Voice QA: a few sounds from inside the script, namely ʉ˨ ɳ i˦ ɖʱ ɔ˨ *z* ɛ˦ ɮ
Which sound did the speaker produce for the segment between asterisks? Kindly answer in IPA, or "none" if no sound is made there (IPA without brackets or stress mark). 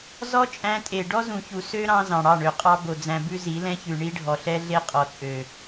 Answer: ɬ